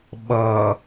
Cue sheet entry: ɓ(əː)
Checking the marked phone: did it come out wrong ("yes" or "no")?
yes